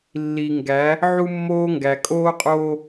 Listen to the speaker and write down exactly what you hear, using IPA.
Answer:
lː i˨ ŋ ɡ æ˨˦ | ʕ u˦ mː oː˦ ŋ ɡ æ˨ kʼ oː˦ qʼ oː˦

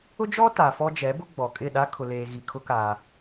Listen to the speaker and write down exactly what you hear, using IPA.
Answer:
ʊ˦ d͡ʒ ɔ˦ t a˨ f ɔ˦ d͡ʒ ɛ˨˦ b ʊ˦ ɡ͡b ɔ˨ kʼ ɪ˦˨ ɗ a˦ kʰ ʊ˨ l eː˨ ɣ i˨ kʰ ʊ˦ k a˨

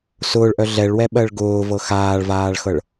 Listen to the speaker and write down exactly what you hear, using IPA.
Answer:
s ʊː ɭ ʔ œ ɮ ɛ ɭ w ɛ ɓ ɜ ɭ ɡ ʊː v ɤ x aː ɭ v aː ɭ x ɤ ɭ

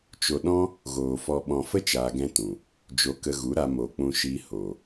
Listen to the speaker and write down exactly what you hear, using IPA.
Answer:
t͡ʃ o˨ ɗ ɔ̃˦ | ɣ oː˨ f ɔ˨ ɓ ɔ̃˨ f ə˦ t͡ʃ aː˧ ɡ ɛ̃˦ t ũ˨ | d͡ʒ o˧ k ə˧ ɣ u˨˦ ɾ a˧ m o˨ k͡p ũ˧ ʃ iː˧ h oː˨

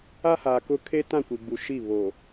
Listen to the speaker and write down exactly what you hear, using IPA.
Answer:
a˦ h aː˨ k ʊ˦ kʰ e˦ t ã˦˨ kʷ i˨ ɡ͡b u˨ ʃ i˦˨ β oː˨

